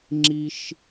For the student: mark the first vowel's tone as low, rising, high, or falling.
high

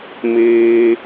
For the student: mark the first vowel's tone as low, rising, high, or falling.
high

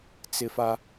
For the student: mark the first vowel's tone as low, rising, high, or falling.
high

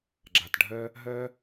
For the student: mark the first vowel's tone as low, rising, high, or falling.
low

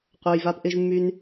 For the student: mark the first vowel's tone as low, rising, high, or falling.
low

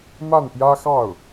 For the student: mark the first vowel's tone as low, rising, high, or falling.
falling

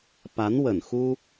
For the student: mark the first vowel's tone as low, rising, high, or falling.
rising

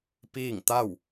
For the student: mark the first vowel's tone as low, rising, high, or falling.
falling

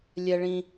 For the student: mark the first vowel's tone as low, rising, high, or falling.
high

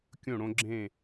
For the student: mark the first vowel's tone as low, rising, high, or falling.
falling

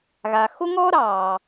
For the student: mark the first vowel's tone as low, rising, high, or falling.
low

